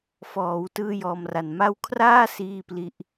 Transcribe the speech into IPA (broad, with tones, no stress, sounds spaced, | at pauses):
f ɔː˩˦ w t ɯː˥˩ j ɔː˧ m r a˨˩ n m a˦˥ w kʰ r aː˥˩ s iː˥˩ p l i˦˥ ʔ